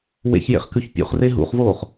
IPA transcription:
w ḛ ç j ḛ χ k ʉ ç pʲ ṵ χ r e ɦ ṵ χ v oː χ

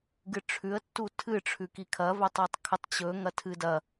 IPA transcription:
ɡ ɨ ʈ͡ʂʰ ʉ ə̯ tː u tʰ ɨ ʈ͡ʂʰ ʉ k i kʰ ɐ v ɵ tˤ a tˤ kʰ ɵ tˤ t͡ɕ ɵ ŋ ɐ tʰ ɨ d ɐ

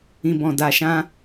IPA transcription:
ĩ˨ b ɔ̃˨ d a˨ ʃ ã˧

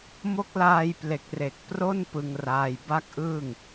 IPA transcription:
m o˦˥ k̚ l aː˧ j p l e˨˩ k̚ r e˨˩ k̚ p r o˥˩ n p ɯ˧ ŋ r aː˧ j b a˥˩ k̚ ʔ ɯː˥˩ ŋ

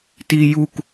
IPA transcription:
t i j u k

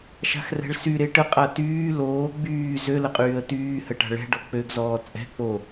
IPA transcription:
ʃ a̤ x r ɛ̤ ɭ s y ɾ e ʈ ə qʼ a t yː l oː ɡ͡b yː z ø l ə qʼ yː ə̯ t yː h ə ʈ a̤ ɭ ɛ̤ ɖ ɔ k͡p ø ɡ z ɔː t͡sʼ ɛ̤ k͡p o

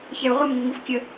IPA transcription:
ç ɛ u̯ ʁʷ ə m ŋ ə ŋ u f kʲ ə

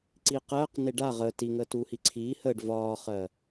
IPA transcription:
ǀ iː q ɜː q n e ɖ a ʁ əː t i ŋ əː t uː h i ǀʰ iː h əː ɖ v ɒː χ ɜ

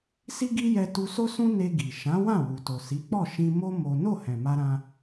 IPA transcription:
s i˦ ɡ i˦ j ɛ˧ t u˧ s o˦ s ũ˦ n e˧ ɡ i˨ ʃ ã˨˦ w ã˦˨ w u˨ t o˨ s i˨˦ k͡p ɔ˦˨ ʃ ĩ˧ m o˦ m o˦ n o˦˨ h ɛ̃˨ m a˧ ɾ ã˧

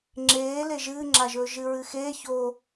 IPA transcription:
ŋ͡ǁ eː l e ʒ ɨː ŋ͡ǁ a ʒ ɵː ʒ ɨ ɹ ɨ x eː ç o

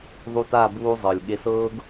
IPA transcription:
ðˤ u˧ t a˦˨ b uː˧ zˤ ɤ˨ lʲ ɠ e˧ s ɤː˦ ɡ

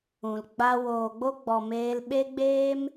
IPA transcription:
ũ˨ l ɡ͡b a˧ w oː˨ ɡ͡b o˧ ɡ͡b ɔ˨ m eː˧ l ɓ e˦ ɡ͡b eː˦ m

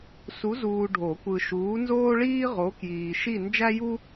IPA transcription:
s u˨˥ z uː˨ ɖʱ o˨˩˦ kʷ ɯ˨ ʃ uː˨˥ n z oː˥ ɭ iː˥ ʁ o˨˥ k j iː˨ ʃ i˥˧ n d͡ʒ æ˥ j u˥

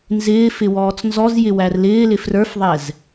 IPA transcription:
n z ɪː f ɪ w ɔː t͡s n z ɔ z j ɪ w æ r l ɪː l ɪ f r ə˞ f ðˤ ɛ z

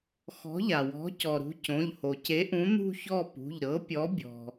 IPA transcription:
x ɔ̤˨˥ ʎ a˩ w ɔ̤˨˥ c ɔ˩ ɾ ṳ˨˥ c õ˩˧˩ ʎ h o˩ c e˨˥ ʔ ũ˨˥ n̪ ṳ˥˧ ç ɔ˥˧ p ṳ˩˧˩ ʎ ɾ ɤ˨˥ pʲ ɔ˨˥ bʲ ɔ̤˩

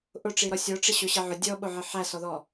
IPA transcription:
ʔ ʊ ʈ͡ʂ i ɾ ɔ sʲ ɔ ʈ͡ʂ ɪ ɕ ʊ ɕ ɪ ʕ ʊ dʲ ɔ ɓ ʊ ʕ ɪ ħ æ s ɔ ð ɔ

